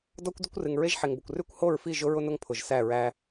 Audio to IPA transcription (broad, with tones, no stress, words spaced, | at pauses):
dɔ˦kʷ dʊ˦kʷrɨ˨ŋ ɹe˦ʒħe˨ŋbʊ˨kʷ rʉ˦kʷho˦˨ɹfi˦˨ ʒʊ˦ɹʊ˦nʊ˦ŋ pʰʊ˨ʒsæ˦˨ɹæ˦